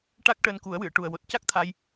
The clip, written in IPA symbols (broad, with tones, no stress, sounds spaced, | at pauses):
ʈ a˦˥ k̚ ʈ əː˧ n k u˨˩˦ ə̯ w ɨ˨˩˨ ə̯ ʈ u˨˩ ə̯ w o˨˩ t̚ c a˦˥ k̚ t̪ʰ a˧ j